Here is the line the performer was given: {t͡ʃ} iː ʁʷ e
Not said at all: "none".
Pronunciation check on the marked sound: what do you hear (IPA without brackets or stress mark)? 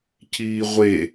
c